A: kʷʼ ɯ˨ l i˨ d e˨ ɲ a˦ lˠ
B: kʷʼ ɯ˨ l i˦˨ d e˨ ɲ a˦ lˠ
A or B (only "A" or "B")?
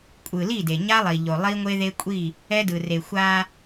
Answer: B